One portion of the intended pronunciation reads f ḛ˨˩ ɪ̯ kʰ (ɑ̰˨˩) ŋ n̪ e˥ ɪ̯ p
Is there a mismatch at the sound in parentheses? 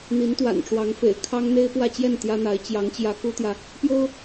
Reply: yes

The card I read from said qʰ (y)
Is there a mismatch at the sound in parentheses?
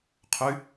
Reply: no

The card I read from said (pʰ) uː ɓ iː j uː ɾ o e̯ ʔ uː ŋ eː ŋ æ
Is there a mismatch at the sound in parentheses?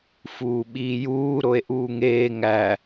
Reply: yes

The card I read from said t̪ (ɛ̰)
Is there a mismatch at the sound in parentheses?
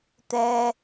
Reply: yes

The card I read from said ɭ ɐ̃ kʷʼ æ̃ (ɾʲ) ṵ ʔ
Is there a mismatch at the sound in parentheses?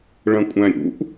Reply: no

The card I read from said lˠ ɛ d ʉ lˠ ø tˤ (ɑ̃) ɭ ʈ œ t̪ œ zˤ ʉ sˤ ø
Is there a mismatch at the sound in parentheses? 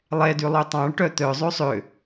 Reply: no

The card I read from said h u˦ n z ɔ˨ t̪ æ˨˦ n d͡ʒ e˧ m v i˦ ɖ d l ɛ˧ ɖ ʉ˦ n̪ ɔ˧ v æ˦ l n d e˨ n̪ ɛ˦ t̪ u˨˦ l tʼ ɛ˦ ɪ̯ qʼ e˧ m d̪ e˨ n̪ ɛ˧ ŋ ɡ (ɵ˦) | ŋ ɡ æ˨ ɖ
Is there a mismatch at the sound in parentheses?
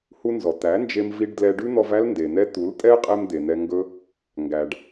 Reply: no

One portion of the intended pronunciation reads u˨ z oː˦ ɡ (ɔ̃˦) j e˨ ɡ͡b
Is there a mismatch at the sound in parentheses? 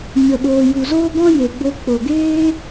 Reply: no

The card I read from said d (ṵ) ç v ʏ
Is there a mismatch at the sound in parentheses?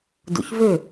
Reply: no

